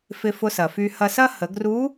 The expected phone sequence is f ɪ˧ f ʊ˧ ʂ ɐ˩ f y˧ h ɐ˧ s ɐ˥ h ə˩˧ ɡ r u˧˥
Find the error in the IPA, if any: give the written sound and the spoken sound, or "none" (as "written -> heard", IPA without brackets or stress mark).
ʂ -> s